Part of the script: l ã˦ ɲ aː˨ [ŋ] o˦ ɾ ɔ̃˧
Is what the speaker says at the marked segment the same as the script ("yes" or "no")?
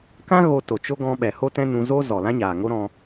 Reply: yes